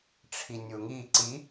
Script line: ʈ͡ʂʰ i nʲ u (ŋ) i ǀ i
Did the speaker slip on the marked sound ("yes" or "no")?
no